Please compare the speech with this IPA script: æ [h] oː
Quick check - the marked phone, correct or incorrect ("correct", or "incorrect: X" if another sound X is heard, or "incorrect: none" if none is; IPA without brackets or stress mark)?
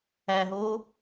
incorrect: ɦ